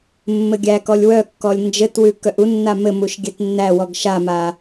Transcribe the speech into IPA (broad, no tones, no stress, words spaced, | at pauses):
mːɘɡʲækɔlʲ wœkːɔlʲ nd͡ʒɘtwʉ kœʔunːa mɘmuʃ ɡʲɛtnːæwɔɡ ʃama